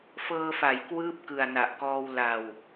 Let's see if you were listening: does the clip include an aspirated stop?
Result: no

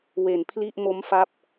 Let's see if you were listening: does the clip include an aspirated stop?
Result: yes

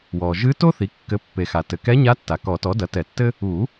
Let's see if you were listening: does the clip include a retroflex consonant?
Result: no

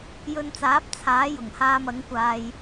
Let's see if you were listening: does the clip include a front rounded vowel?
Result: no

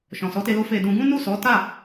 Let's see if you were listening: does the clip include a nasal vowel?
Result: yes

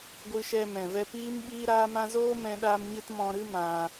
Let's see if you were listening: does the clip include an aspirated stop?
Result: no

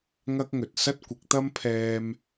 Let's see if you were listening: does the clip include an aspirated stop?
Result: yes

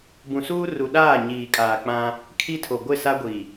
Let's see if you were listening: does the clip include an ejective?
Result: yes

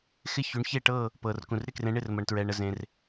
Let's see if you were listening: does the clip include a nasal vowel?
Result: yes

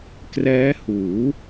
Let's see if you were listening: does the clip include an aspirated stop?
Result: no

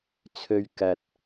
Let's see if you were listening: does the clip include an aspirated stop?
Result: yes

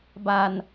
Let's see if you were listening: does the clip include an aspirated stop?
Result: no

